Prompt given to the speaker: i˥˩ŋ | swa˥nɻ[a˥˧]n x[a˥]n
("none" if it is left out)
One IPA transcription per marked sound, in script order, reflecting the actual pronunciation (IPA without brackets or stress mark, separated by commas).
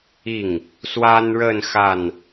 ə˥˧, a˥˩